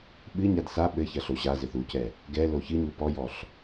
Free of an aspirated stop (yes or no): yes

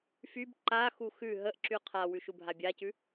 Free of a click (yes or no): no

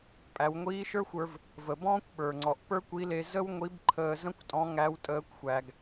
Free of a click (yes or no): no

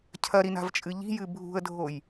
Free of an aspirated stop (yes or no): no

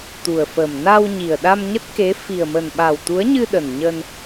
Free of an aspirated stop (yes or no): yes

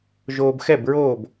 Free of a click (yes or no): yes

